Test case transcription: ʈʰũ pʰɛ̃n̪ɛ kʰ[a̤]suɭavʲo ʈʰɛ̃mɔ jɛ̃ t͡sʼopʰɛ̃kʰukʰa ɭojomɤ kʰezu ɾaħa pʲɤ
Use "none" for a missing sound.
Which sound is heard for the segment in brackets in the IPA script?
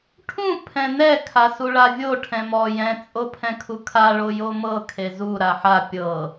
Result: a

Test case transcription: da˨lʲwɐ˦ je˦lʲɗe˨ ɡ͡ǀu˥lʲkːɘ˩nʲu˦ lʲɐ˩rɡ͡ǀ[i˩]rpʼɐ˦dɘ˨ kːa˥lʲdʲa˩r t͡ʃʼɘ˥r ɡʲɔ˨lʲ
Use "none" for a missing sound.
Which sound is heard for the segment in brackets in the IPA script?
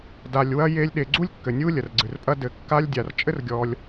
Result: ɨ˩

